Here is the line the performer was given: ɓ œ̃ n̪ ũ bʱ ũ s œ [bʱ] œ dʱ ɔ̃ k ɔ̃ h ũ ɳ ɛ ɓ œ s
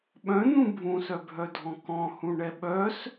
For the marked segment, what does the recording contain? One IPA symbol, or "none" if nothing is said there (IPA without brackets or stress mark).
bʱ